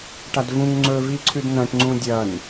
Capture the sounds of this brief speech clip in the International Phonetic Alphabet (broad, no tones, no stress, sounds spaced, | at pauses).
ʈ a d v ũ ŋ ŋ͡ǀ ɵ v i ǀʰ ʉ d n ɐ̃ ʈ ŋ͡ǀ ũ dʲ ɐ n